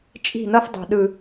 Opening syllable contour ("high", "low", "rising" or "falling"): falling